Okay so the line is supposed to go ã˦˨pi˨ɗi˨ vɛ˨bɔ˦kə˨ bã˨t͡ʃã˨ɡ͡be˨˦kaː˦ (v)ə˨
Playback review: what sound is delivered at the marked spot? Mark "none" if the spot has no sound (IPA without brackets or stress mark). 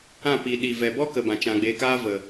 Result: v